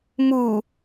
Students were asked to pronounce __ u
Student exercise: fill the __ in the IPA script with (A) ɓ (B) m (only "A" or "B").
B